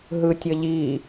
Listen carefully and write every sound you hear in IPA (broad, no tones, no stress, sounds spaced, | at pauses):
ɦ ɯ tʲ ʌ ʎ i